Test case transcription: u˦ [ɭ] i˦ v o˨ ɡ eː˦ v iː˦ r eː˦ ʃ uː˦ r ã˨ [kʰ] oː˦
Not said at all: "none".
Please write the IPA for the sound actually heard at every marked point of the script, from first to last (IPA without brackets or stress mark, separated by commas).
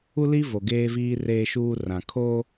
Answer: l, kʰ